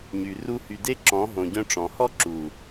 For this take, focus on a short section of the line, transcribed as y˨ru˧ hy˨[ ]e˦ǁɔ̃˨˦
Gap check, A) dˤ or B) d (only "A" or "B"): B